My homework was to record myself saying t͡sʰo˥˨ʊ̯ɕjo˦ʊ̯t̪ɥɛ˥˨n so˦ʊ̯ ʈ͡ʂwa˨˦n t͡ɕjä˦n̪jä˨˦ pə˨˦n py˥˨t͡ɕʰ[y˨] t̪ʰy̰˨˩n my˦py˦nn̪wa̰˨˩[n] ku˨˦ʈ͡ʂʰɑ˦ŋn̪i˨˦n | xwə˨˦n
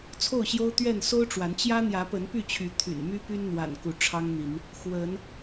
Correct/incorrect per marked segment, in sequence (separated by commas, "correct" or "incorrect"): incorrect, correct